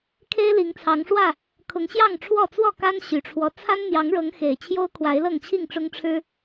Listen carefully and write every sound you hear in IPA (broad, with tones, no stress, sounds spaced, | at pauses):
kʰ e˦ ɪ̯ l i˨˦ ŋ t͡sʰ ɑ˨˦ ŋ ʂ w ä˥˨ | kʰ ʊ˨˦ ŋ ɕ j ɑ˥˨ ŋ ʈ͡ʂʰ w ɔ˥˨ t͡s w ɔ˥˨ k a˦ n ɕ y˨˩ ʈ͡ʂʰ w ɔ˦ t͡sʰ a˦ n n̪ j ɑ˨˦ ŋ ɻ ɤ˨˦ ŋ x e˨˩ ɪ̯ t͡ɕʰ j o˦ ʊ̯ kʰ w a˨˦ ɪ̯ l ɤ˥˨ ŋ t͡ɕʰ i˥˨ ŋ ʈ͡ʂ ʊ˦ ŋ ʈ͡ʂʰ ɻ̩˦